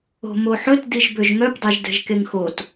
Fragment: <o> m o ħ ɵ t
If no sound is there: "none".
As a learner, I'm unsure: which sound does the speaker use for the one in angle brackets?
o̤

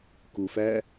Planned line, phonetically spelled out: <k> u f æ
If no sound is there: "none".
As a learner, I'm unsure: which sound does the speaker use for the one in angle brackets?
k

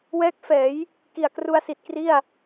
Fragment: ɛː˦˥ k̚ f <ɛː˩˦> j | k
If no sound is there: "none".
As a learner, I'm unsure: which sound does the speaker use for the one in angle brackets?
ɛː˩˦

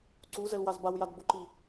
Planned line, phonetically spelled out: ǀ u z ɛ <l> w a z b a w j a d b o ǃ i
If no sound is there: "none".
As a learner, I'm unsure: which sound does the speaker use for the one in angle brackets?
l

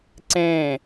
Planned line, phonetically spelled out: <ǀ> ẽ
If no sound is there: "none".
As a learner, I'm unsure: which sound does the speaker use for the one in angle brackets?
ǀ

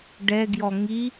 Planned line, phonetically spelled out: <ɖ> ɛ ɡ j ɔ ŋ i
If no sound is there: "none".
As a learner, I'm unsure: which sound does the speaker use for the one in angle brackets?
ɖ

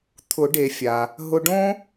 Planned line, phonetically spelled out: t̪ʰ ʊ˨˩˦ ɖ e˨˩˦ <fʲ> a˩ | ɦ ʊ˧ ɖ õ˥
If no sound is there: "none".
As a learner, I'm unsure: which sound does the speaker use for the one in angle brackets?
fʲ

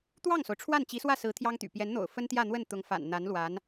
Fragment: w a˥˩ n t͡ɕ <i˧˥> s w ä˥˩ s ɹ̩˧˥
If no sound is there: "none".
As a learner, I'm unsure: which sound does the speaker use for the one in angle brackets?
i˧˥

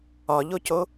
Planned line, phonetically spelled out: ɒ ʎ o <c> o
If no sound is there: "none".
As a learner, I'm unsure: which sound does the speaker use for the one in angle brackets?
c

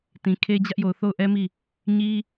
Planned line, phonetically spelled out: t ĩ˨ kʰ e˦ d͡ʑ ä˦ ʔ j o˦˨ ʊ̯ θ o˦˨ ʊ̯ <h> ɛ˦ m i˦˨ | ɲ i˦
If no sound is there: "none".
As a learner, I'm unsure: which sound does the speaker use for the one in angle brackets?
ʔ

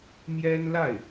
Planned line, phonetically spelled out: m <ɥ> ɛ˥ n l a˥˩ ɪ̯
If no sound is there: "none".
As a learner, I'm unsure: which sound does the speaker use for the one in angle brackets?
j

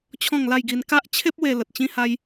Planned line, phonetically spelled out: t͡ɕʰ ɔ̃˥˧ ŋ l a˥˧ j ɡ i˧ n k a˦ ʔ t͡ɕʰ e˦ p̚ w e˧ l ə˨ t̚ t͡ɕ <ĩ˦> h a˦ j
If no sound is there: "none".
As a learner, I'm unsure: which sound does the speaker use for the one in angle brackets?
ĩ˥˧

